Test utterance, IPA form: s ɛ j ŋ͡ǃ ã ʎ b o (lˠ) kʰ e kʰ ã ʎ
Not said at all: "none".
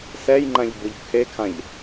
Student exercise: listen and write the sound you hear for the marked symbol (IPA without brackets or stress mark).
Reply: ʎ